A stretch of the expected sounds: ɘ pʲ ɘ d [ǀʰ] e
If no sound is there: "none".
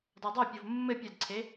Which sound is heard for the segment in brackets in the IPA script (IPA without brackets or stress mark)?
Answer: ǀʰ